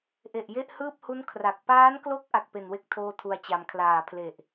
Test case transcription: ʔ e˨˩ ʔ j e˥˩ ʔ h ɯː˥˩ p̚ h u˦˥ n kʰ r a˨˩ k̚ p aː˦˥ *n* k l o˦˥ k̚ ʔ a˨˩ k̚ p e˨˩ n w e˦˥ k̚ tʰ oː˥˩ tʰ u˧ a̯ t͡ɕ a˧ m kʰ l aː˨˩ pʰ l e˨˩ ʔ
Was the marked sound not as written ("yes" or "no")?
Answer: no